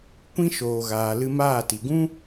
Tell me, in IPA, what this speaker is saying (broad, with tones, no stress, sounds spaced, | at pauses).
kʷ ĩ˦ ʃ oː˨ ɣ aː˨ l ɨ˧ m aː˦˨ t i˨ ɡ ũ˦